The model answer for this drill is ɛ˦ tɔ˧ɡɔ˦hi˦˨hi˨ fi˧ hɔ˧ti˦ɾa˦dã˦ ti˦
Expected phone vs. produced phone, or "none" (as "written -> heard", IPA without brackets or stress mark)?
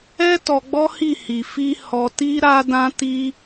ɡ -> ɡ͡b